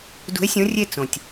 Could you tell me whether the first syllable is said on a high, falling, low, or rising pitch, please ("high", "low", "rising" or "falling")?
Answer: rising